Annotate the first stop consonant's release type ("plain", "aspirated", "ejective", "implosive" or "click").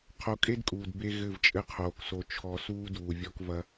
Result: aspirated